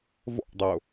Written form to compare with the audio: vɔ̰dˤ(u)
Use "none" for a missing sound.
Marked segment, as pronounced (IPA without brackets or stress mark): o